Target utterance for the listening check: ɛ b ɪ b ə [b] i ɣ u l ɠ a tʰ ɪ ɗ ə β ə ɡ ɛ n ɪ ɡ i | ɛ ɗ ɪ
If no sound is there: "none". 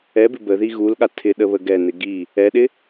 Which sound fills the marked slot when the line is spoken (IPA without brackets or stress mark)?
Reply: ð